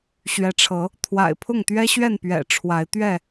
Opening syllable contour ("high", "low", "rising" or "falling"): rising